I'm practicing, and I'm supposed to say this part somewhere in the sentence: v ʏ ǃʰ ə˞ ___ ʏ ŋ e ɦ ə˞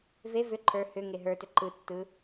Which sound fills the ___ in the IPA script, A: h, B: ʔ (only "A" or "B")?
A